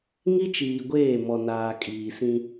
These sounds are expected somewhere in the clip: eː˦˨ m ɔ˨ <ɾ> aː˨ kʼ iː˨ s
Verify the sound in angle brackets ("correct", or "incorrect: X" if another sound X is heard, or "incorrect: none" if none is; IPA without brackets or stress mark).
incorrect: n